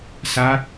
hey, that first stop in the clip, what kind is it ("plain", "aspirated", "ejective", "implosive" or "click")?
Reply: plain